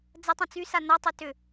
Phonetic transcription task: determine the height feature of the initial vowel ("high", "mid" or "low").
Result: low